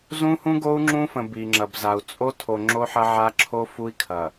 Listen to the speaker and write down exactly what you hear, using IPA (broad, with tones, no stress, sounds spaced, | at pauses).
z ũ˦ h ũ˦ ɡ o˦ u̯ ŋ͡ǁ ũ˦ f ə̃˨ b i˨ ŋ͡ǁ ɐ˨ b z a˨ u̯ t͡sʼ o˦ tʰ o˨ ŋ͡ǁ o˦ ħ ɐ˦ ʕ a˦ ǁʰ o˦ f u˦ i̯ kʰ ɐ˨